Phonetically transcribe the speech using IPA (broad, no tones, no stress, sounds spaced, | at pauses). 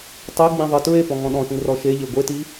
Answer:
tˤ e ɡ͡b ĩ ðˤ ə t ɹ e p ɔ̃ ŋ ɔ̃ ɗ ɔ̃ ʃ ĩ r ɔ ʃ e ʎ e ɡʷ e t i